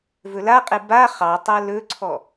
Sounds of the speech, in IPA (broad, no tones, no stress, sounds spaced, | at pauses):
v ɵ l a qʼ e b a χ ɑ tˤ a l ɵ ǀʰ ɔ